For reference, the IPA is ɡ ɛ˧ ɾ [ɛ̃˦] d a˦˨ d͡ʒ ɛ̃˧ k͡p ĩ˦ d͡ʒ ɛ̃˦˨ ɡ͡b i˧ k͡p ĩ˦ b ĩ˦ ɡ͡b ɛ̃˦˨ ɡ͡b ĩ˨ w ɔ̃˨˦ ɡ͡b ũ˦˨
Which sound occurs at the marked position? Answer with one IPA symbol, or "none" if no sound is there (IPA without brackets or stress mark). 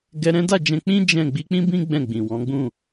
ɛ̃˦